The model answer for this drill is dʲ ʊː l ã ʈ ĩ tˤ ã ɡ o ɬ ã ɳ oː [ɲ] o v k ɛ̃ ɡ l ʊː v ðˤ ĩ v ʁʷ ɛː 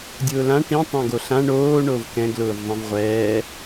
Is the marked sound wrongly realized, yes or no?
yes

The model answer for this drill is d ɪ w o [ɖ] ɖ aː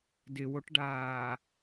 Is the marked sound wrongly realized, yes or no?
yes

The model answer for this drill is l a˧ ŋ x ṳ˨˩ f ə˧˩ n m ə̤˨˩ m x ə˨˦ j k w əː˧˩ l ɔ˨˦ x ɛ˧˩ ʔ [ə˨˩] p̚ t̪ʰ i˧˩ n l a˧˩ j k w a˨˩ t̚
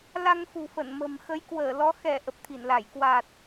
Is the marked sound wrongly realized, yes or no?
no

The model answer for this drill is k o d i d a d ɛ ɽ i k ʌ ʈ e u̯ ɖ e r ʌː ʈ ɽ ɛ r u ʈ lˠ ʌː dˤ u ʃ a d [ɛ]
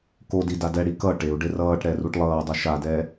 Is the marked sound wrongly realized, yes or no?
no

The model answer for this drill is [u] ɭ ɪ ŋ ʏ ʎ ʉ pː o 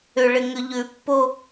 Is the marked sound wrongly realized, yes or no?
yes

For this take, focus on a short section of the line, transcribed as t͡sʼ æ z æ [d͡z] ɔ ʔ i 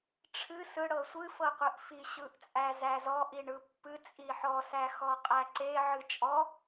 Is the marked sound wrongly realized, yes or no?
yes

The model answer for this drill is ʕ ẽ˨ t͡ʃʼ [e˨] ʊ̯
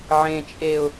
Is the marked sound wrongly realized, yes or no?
no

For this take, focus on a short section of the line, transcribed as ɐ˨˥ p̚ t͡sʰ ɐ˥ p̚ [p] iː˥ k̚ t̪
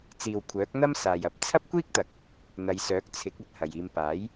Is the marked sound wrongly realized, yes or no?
yes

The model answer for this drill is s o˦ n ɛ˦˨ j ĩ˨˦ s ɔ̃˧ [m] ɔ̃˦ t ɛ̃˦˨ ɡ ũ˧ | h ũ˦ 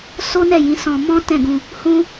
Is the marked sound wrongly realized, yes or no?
no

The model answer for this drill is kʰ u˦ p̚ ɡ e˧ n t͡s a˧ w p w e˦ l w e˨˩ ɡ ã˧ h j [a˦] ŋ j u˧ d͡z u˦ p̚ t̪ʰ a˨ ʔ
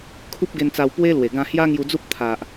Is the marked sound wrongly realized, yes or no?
no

